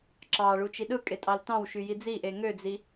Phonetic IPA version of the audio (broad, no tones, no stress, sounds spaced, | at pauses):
ǁ ɑ ɭ u t͡ʃ i ɗ ɯ kʼ e tʼ ɑ l t ɑ̃ w ʃ y j i d͡z i ʔ e ŋ ø d͡z i